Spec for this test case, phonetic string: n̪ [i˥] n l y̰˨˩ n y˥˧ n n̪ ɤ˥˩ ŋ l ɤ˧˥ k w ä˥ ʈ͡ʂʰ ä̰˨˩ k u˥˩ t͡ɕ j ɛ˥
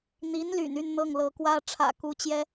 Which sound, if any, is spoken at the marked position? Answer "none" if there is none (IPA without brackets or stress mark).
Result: i˧˥